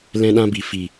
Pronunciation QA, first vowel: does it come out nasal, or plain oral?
nasal